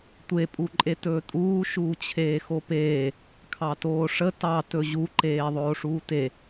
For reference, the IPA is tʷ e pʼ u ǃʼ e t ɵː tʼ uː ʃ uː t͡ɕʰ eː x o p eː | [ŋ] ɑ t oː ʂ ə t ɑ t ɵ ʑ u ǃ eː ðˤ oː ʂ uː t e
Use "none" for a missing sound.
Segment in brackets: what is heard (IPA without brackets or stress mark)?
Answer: kʰ